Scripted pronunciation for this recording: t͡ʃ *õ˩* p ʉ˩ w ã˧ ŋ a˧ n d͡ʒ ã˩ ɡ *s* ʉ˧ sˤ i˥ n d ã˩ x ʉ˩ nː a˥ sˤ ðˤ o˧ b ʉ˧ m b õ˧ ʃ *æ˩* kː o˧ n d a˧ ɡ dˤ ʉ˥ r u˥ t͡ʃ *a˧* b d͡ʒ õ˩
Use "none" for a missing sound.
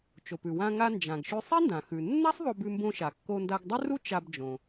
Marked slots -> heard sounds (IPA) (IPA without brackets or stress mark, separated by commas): o˩, ʃ, a˩, a˧